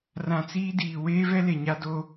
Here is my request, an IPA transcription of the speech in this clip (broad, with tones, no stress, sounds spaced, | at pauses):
r ã˨ t͡s iː˦ d iː˨ w eː˦ v ɛ˦ l e˨ ɲ a˦ d o˦